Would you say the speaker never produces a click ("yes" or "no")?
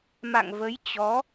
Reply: yes